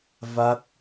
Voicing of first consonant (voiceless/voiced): voiced